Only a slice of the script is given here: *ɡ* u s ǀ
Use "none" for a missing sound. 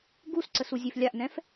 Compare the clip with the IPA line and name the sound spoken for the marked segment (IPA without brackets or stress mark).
ɡ